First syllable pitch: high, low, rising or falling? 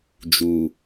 low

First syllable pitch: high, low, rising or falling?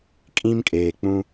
high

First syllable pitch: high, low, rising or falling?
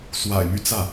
low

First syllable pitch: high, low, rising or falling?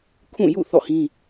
falling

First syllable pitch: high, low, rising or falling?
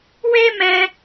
high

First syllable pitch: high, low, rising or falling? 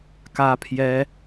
high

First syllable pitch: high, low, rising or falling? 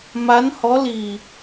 rising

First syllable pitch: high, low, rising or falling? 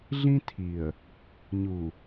high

